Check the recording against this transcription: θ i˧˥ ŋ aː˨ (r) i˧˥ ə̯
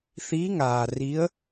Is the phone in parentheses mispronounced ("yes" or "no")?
no